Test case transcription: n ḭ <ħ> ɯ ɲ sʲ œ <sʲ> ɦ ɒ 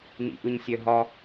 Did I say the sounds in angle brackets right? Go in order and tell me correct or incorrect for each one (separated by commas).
incorrect, incorrect